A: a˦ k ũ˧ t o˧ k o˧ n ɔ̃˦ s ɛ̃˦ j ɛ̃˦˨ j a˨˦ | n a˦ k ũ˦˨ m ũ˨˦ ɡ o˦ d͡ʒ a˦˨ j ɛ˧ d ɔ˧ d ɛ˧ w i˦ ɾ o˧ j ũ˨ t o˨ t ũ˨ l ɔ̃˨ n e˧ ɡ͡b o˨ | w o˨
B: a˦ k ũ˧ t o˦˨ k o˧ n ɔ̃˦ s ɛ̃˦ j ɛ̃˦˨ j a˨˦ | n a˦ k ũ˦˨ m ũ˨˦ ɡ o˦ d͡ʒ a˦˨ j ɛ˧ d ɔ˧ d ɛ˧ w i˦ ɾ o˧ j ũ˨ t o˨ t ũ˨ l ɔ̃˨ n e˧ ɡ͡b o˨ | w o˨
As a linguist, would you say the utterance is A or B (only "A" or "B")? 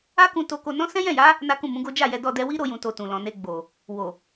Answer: A